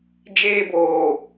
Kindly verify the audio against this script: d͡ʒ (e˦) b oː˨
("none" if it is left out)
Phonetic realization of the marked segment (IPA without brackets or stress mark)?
eː˦